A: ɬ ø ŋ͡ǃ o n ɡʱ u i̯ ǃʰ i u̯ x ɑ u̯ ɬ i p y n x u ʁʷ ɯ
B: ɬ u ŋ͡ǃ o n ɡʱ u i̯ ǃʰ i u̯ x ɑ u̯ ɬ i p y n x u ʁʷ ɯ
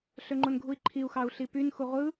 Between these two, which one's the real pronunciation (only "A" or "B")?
A